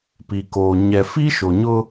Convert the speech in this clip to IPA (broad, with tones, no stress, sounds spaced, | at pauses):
p i˨ k oː˨ ɲ ɛ˨ f i˦ ʃ o˨ ɲ ʊ˦